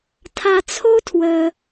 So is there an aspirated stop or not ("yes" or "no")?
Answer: yes